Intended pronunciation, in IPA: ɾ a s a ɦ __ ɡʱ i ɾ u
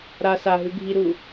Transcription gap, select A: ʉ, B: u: A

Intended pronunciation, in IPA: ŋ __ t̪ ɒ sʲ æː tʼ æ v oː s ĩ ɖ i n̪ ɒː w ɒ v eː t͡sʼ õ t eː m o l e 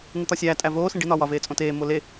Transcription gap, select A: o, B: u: B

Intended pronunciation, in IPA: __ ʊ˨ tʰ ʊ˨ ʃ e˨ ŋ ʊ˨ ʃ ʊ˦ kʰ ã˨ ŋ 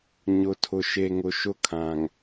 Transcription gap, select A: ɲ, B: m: A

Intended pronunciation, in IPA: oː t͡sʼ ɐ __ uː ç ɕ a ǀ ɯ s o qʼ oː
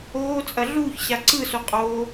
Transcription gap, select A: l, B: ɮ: B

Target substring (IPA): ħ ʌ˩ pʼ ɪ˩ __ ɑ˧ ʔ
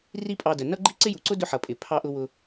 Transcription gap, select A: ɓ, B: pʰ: B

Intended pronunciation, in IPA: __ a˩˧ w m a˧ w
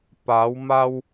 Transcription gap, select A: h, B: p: B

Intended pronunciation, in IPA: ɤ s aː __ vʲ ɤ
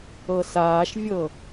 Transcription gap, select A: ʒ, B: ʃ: B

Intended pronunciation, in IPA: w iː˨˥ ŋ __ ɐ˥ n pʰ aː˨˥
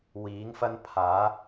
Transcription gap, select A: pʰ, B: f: B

